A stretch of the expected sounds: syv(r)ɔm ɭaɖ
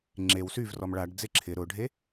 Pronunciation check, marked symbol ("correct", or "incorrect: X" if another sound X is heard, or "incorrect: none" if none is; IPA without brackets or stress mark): correct